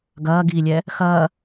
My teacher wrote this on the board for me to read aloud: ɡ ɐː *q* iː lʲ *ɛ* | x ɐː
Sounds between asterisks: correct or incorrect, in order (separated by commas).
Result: incorrect, correct